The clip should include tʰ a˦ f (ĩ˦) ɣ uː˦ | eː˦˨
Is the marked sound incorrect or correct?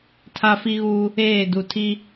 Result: incorrect: i˦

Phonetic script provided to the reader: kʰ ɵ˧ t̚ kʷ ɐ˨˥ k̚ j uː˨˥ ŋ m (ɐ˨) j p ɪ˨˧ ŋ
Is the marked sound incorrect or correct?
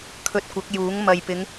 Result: correct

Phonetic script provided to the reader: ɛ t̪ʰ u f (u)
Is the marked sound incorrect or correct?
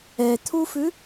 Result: incorrect: ʉ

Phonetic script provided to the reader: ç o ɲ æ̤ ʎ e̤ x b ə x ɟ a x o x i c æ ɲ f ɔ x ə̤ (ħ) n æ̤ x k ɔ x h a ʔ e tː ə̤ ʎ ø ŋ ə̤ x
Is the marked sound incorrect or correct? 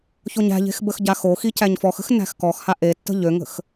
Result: incorrect: x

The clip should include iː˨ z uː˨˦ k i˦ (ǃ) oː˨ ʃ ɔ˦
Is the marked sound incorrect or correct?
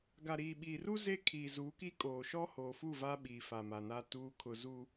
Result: incorrect: kʼ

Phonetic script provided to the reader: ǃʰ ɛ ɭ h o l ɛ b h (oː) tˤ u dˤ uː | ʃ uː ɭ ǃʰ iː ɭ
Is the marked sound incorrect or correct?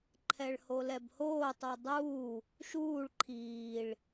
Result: correct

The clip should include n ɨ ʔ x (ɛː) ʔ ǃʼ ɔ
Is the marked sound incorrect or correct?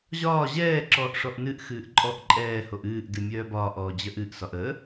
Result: incorrect: ɨː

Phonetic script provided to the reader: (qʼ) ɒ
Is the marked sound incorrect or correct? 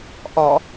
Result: incorrect: ʔ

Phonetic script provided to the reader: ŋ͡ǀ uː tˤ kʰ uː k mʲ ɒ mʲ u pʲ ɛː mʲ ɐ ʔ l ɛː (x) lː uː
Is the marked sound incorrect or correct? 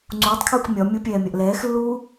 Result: correct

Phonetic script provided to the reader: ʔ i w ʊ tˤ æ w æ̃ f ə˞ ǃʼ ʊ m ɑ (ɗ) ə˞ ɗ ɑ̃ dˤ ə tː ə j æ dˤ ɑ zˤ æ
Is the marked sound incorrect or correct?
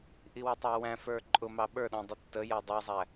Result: incorrect: ɓ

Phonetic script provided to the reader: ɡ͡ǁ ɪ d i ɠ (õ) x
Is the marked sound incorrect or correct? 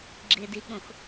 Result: correct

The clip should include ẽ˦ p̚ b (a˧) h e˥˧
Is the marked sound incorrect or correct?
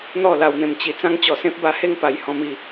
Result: correct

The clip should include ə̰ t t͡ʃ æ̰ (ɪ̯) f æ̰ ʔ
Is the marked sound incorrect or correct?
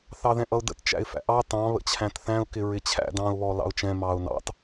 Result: correct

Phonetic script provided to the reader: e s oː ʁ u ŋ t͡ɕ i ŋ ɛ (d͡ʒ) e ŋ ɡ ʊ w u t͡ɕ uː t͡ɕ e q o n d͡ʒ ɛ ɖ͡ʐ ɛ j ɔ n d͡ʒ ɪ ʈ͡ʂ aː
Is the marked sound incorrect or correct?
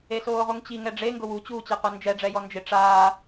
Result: incorrect: ɖ͡ʐ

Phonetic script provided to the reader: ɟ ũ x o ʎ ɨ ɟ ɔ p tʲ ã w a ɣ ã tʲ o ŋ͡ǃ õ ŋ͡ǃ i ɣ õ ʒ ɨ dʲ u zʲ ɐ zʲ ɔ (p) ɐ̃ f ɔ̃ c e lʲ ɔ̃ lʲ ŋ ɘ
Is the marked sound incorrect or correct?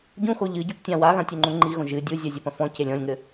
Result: correct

